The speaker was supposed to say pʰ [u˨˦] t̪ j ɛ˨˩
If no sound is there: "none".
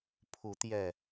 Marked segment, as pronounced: u˨˦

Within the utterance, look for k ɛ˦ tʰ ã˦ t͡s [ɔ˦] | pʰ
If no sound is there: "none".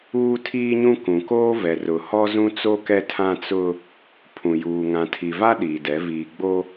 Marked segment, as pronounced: ʊ˦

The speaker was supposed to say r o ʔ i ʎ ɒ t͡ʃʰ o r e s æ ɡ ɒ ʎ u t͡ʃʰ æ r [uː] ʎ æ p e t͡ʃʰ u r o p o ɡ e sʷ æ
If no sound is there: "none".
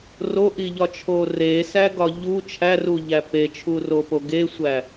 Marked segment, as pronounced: u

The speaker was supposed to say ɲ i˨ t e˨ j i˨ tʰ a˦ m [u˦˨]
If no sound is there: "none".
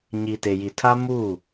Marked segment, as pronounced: u˦˨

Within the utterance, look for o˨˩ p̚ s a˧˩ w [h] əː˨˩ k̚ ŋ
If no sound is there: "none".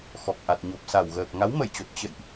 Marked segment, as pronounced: ɣ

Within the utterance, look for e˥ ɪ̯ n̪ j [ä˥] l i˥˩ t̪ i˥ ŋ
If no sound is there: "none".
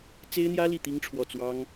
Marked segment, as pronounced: ä˥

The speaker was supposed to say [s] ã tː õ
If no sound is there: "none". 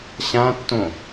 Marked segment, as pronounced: ɕ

